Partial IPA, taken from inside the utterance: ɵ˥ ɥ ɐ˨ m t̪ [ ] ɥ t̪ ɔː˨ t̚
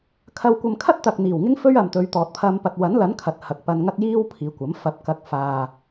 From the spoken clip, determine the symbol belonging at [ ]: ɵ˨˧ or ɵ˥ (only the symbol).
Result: ɵ˨˧